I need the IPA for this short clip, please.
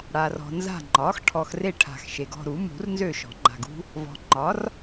ɽ a˨ r ɔ̤˨ n z a̤˦˨ ŋ͡ǃ ɒ˩˥ x ʈʰ ɔ˨ x r e˦˨ ʈʰ a̤˨ x ʃ e˨ ɡ ɔ̤˦˨ ɾ u˨˩˦ m ṳ˨˩˦ r n z ø˦˨ ʃ ɔ̤˨˩˦ ŋ͡ǃ a̤˨ ɡ ṳ˦ | v ɔ̤˨ ŋ͡ǃ ɒ˩˥ r

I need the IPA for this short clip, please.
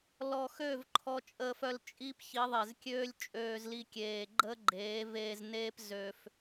l ɔ˧ x ø˦˨ v ǃʰ ɔ˧ t͡ʃʼ əː˧ f œ˧ l t͡ʃʼ i˦ p ç i˨˦ ðˤ e˨ z kʲ øː˦ lʲ t͡ʃʼ øː˧ z l i˧ kʲ eː˨ ɡ͡ǃ əː˦ ɡ͡ǃ eː˨˦ v eː˧ z n eː˦ p z ø˧ f

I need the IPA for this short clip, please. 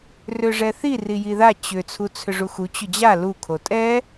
r ʏ ʐ ɛ θ i r i j i ð a t͡ɕ ʏ t͡sʰ u t͡sʰ ʏ ʐ u x u t͡ɕ ʏ d͡ʑ a l u kʰ o tʼ ɛ

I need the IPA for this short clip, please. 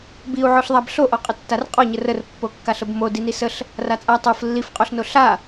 b i u̯ ʕ o ɬ ðˤ a b ɬ o ʔ ɔ qʼ ə tː a r qʼ ɔ ɲ ə r ə r pː o kː a ɬ ə b m o d i n i s ə ɬ | r a t͡sʼ a tˤ o f lː i f qʼ o ɬ n o ɬ a

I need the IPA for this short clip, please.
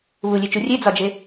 β u lʲ e t͡ʃ u rʲ e d͡z ɒ d͡ʒ e

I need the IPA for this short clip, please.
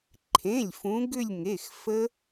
ǃʰ ẽ˩˧˩ lʲ f ũ˨˥ ɡ ʏ˦˨ lʲ ŋ e˩˧˩ x f ə˦˥

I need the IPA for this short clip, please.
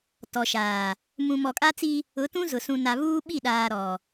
t ɔ˨ ʃ aː˨ | m ũ˨ m ɔ˨ kʼ a˦ t͡s i˦ | ʊ˨˦ t ũ˦ z ʊ˨ s ũ˨ n a˨ β uː˦ ɓ i˦˨ ɗ aː˨ ɾ ɔ˨

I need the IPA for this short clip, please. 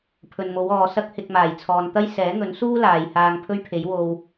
pʰ ɵ˨ n m o˨˧ w ɔː˨ s ɐ˥ k̚ h ɪ˧ k̚ m aː˨˩ j t͡sʰ ɔː˨ n t̪ ɐ˥ j s ɛː˨˥ ŋ ɵ˨˥ n s uː˥ l aː˨ j h aː˧ ŋ pʰ ɵ˥ ɥ pʰ e˨˥ j w o˧ w

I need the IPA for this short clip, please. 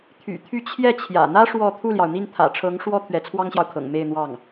t̪ʰ y̰˨˩ t̪ʰ y˥˧ t͡ɕʰ j ɛ˥˩ t͡ɕʰ j ä̰˨˩ n̪ ä˥ ʂ w ɔ˥˧ t̪ʰ u˥˩ l j ɑ˩ ʊ̯ n̪ i˥˩ n t̪ʰ ä̰˨˩ ʈ͡ʂʰ ɤ˧˥ ŋ ʂ w ɔ˥ t̪ʰ ɥ ɛ˧˥ t͡sʰ w ɑ˥ ŋ ɕ j ɑ˨ ʊ̯ kʰ ɤ̰˨˩ ŋ m e˥˧ ɪ̯ n̪ w ɑ˥˩ ŋ

